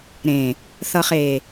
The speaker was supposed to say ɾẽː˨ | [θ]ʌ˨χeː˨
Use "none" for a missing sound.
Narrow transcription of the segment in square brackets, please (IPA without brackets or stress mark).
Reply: θ